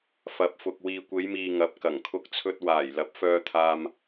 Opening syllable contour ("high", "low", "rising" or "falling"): low